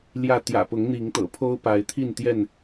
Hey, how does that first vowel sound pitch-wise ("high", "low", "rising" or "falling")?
falling